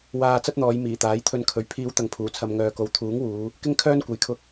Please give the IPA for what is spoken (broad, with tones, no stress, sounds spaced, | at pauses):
w aː˧ t͡s ɐ˥ t̚ n̪ ɔː˨˧ j m iː˨˩ t̪ aː˨˥ j t̪ʰ ɵ˧ n kʰ ɵ˨ ɥ pʰ iː˨˧ w t̪ ɐ˨ ŋ pʰ uː˨˩ t͡sʰ ɐ˨ m ŋ œː˨ k o˨ w t̪ʰ uː˨˥ ŋ w uː˨˧ | k ɪ˥ ŋ kʰ œː˥ n kʷ ɐ˧ j kʰ ʊ˥ k̚